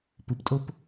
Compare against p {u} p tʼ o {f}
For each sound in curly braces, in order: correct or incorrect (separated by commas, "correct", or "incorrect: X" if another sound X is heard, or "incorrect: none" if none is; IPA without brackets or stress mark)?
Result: correct, incorrect: p